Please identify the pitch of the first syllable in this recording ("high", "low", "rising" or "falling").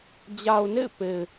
low